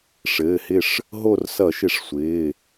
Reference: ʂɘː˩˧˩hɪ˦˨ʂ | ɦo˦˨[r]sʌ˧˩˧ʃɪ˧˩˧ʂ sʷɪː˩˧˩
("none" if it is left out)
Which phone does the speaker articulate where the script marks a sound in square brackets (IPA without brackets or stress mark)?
r